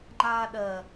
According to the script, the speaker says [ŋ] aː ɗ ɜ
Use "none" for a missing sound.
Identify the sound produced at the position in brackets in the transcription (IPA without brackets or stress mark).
ŋ͡ǃ